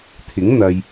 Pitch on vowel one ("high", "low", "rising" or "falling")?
rising